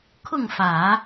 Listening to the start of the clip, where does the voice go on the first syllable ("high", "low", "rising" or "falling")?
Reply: falling